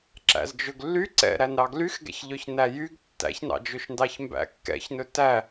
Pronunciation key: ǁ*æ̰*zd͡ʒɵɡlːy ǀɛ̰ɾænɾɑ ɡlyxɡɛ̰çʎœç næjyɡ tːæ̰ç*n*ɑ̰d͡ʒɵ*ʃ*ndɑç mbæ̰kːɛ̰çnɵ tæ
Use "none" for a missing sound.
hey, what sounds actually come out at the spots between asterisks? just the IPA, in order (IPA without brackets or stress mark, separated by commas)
æ̰, n, ʃ